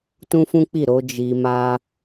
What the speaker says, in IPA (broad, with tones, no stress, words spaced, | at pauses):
tũ˦fũ˦k͡pi˦˨ɾo˧ d͡ʒi˧ma˦